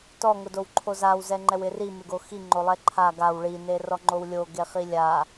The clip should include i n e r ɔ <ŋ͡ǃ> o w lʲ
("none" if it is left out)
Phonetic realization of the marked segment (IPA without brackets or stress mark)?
ŋ͡ǃ